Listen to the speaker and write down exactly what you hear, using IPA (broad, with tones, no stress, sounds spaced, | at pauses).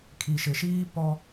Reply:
kʰ i˨ ʃ ɪ˨ ʃ iː˦ p ɔ˦